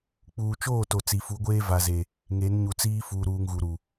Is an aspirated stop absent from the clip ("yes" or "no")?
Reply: yes